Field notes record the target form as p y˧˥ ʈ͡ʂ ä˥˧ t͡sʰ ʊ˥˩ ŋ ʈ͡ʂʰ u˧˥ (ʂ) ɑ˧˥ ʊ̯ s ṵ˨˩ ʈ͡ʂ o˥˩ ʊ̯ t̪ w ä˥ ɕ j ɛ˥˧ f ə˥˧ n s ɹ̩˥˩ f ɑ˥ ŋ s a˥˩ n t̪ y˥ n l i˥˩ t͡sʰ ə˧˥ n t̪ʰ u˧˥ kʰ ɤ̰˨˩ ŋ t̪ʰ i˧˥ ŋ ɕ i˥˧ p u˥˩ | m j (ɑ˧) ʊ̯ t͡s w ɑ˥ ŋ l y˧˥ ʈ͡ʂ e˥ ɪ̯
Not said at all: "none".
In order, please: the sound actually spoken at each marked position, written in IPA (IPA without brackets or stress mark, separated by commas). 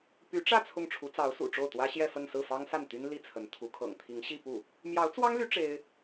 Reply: t͡s, ɑ˧˥